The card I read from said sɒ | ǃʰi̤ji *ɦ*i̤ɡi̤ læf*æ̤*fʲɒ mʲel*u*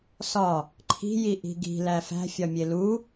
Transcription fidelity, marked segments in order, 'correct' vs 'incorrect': incorrect, correct, correct

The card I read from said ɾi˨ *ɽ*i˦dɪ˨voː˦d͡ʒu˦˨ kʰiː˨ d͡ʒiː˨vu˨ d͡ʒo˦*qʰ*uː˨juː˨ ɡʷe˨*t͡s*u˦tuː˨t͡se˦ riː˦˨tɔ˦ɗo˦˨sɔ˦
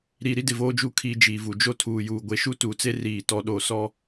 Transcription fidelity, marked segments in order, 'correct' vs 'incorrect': incorrect, incorrect, incorrect

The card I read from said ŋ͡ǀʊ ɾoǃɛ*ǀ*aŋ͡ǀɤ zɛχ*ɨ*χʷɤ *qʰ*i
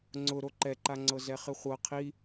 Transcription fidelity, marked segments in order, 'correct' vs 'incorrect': incorrect, correct, correct

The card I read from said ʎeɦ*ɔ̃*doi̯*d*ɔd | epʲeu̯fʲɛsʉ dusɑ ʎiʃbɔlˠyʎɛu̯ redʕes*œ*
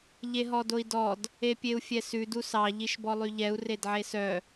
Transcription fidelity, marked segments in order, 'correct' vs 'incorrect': incorrect, correct, correct

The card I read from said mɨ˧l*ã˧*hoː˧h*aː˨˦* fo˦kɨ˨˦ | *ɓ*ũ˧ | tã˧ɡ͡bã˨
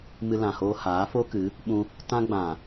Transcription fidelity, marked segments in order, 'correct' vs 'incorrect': incorrect, correct, correct

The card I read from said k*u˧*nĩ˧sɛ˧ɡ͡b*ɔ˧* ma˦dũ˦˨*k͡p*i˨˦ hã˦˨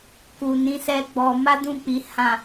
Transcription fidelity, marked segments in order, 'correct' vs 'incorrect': incorrect, correct, correct

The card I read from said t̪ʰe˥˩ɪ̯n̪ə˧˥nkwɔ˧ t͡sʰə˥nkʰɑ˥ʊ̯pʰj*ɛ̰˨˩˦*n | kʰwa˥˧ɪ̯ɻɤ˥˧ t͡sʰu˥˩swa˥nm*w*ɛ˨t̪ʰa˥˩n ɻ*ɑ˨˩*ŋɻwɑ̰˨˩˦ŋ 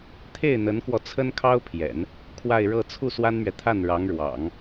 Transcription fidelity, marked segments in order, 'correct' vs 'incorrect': correct, incorrect, incorrect

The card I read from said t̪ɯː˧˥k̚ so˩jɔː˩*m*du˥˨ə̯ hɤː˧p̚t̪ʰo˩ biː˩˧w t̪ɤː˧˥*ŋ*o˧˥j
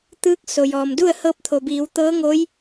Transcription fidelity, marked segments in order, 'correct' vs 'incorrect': correct, correct

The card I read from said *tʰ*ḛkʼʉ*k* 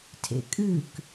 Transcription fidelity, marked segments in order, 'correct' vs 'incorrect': correct, correct

